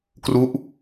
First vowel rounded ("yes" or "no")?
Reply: yes